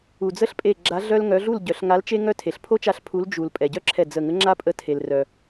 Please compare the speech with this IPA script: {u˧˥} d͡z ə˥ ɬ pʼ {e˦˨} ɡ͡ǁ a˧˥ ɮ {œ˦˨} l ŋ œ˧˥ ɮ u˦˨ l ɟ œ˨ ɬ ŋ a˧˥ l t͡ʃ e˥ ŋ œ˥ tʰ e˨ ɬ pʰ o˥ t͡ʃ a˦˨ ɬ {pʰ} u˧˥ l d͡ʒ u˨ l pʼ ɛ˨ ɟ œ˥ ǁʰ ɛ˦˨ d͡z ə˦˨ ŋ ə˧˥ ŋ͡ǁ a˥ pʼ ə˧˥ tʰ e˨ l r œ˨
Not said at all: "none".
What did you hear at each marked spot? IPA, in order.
u˨, e˦˨, œ˥, pʰ

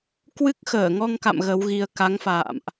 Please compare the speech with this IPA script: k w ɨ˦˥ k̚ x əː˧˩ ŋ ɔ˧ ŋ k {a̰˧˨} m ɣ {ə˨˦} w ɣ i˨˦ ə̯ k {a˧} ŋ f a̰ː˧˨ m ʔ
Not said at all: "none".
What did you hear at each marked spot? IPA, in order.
a̰˧˨, ə˨˦, a˨˦

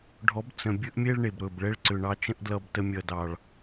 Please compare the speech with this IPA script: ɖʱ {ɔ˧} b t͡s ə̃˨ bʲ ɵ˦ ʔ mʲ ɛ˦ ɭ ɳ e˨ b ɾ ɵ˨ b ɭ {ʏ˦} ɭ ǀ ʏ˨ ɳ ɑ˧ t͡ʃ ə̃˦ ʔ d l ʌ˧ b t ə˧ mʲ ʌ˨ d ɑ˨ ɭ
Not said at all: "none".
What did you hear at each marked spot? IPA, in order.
ɔ˨˦, ɛ˦

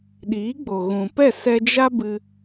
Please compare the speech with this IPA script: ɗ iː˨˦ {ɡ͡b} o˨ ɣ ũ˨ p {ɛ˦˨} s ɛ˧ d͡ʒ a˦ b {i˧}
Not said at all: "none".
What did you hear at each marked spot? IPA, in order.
ɡ͡b, ɛ˦˨, ɨ˧

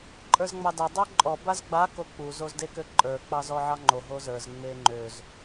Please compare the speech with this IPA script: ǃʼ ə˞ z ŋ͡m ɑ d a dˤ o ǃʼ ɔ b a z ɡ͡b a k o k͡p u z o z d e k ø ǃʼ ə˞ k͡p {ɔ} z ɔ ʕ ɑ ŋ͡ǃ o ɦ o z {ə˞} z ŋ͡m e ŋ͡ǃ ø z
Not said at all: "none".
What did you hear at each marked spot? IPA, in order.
ɑ, ə˞

